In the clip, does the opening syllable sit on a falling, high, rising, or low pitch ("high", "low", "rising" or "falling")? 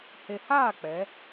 low